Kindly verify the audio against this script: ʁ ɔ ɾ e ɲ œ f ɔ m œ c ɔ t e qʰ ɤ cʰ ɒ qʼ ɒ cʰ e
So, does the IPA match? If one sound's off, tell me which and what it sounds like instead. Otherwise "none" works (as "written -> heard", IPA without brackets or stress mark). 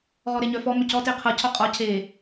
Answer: none